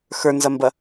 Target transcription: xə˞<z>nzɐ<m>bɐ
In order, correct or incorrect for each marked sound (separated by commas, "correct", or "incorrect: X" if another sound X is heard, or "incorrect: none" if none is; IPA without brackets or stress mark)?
incorrect: none, correct